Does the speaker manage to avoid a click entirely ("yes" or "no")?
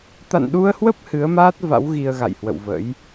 yes